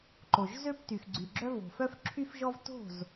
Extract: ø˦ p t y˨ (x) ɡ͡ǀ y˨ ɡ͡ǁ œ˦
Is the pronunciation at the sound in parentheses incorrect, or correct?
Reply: correct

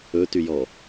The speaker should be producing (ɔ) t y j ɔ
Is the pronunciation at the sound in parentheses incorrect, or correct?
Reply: incorrect: ɵ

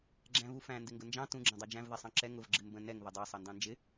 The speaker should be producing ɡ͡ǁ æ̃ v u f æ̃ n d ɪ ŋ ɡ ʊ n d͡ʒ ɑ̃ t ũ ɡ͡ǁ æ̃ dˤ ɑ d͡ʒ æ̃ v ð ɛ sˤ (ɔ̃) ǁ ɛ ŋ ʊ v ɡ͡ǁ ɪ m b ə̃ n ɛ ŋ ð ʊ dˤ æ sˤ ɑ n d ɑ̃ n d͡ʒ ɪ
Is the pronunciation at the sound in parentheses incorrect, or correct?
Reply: incorrect: ɑ̃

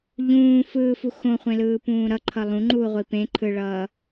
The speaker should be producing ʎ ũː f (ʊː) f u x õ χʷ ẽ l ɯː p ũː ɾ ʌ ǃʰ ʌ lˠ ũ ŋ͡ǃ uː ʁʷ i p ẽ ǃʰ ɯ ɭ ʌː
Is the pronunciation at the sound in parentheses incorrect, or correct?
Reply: incorrect: ɯː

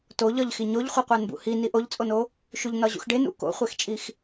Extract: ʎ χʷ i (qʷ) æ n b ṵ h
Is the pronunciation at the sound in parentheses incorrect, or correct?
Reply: correct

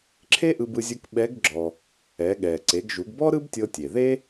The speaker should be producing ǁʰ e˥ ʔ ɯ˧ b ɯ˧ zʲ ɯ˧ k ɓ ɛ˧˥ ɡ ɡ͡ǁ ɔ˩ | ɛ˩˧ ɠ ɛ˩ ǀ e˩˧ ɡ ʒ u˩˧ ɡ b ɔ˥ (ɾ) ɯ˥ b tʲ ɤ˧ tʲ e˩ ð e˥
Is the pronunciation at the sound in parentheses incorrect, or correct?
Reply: correct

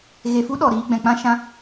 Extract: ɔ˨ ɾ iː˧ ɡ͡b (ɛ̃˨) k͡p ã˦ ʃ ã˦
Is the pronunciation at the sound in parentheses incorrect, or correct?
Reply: correct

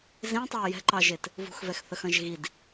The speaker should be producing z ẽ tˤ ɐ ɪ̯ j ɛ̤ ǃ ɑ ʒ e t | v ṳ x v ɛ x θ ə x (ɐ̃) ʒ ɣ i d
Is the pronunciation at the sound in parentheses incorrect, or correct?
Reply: correct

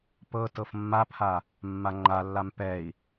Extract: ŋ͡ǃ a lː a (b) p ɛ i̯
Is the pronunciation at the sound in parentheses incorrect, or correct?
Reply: incorrect: m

